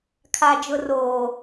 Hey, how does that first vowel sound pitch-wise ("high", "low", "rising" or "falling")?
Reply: high